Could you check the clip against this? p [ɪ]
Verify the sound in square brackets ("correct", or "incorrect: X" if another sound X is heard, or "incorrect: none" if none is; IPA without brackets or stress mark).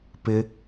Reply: correct